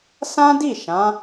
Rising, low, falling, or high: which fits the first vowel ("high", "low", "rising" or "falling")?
high